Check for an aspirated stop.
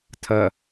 present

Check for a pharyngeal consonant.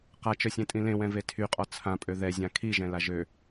absent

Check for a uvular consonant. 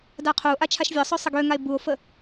present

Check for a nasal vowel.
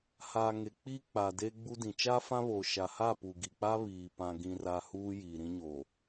present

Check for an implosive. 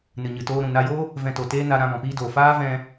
absent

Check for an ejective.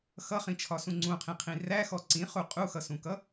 present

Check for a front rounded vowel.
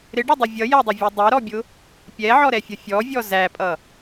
absent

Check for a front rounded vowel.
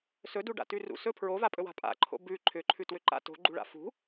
present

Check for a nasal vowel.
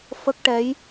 absent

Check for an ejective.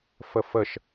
absent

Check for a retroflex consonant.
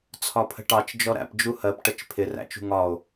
present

